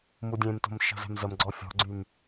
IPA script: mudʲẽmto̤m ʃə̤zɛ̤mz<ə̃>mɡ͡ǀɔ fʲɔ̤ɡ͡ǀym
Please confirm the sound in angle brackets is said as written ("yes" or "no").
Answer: no